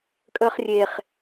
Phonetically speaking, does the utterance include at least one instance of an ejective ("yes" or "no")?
yes